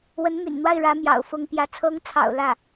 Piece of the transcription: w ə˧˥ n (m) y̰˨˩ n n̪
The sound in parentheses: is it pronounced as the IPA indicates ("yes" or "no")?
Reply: yes